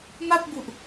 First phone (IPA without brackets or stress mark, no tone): m